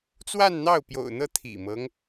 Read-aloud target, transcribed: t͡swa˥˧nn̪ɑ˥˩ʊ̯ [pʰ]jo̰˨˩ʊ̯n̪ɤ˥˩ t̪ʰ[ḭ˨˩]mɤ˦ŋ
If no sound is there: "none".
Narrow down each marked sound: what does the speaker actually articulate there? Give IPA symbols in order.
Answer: p, ḭ˨˩

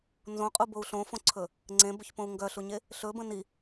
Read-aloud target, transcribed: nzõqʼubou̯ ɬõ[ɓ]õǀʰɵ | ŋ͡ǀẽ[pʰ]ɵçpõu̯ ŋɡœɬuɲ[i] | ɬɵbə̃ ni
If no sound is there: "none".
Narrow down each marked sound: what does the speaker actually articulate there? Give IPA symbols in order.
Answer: f, b, e

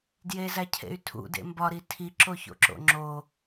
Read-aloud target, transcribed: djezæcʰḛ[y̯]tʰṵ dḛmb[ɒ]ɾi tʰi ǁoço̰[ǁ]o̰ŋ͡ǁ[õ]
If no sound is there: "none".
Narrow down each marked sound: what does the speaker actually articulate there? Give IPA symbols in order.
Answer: y̯, ɒ, ǁ, o

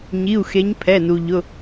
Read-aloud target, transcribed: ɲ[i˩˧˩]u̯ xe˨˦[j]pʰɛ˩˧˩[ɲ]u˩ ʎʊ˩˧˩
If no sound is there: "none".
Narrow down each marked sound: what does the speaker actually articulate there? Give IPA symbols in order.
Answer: i˩˧˩, ɲ, n

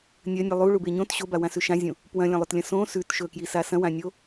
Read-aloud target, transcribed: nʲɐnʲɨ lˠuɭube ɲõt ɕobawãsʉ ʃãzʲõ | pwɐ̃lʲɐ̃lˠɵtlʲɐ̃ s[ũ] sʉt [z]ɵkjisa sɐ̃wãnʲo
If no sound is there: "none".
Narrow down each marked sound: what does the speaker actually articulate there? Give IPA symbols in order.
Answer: õ, ʃ

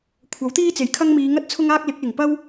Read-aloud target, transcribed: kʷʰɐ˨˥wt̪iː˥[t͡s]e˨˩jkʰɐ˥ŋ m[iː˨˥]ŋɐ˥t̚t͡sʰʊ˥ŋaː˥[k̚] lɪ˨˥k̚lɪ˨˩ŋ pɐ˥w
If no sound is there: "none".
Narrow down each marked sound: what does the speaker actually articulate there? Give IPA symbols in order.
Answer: t͡s, iː˨˧, k̚

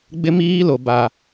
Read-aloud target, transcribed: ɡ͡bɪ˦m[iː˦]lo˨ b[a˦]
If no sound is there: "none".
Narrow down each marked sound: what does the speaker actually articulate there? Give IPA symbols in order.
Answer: iː˦, a˨

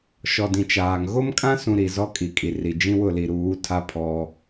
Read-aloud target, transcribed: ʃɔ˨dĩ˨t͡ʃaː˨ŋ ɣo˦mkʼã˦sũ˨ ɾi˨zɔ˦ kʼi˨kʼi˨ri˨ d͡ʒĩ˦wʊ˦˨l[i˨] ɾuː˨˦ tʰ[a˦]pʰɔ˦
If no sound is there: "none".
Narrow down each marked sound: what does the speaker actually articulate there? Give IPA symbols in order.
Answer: i˨, a˦

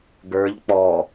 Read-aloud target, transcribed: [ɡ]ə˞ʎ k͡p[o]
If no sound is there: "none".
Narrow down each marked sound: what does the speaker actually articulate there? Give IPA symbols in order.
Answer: ɡ, ɔ

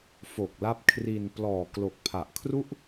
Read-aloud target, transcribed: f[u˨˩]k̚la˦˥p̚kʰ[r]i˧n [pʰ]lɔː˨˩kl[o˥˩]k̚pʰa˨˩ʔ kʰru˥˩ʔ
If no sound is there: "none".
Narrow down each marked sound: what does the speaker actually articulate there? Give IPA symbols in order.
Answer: o˨˩, r, p, o˨˩

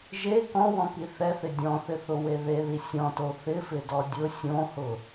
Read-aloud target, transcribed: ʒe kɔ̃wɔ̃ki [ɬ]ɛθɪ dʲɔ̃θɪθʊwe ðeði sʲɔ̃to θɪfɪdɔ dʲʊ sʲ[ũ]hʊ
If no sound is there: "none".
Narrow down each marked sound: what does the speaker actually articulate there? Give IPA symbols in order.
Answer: θ, õ

